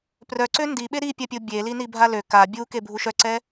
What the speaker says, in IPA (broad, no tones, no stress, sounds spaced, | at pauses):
p r œ ǀ ø n d i ɓ e ɾ i pʲ a pʲ o bʲ e l i n i bʱ a l ø k a bʲ u k e bʱ u ʃ œ ǀ ɛ